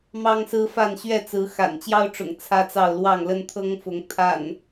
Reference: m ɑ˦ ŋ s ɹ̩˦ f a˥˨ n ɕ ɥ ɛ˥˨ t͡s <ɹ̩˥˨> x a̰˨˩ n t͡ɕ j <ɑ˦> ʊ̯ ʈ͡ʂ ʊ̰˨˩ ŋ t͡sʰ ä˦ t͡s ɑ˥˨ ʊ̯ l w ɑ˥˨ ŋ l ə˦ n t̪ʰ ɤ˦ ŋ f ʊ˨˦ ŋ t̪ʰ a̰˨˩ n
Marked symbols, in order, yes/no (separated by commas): no, yes